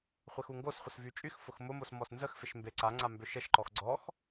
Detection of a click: present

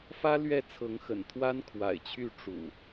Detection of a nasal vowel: absent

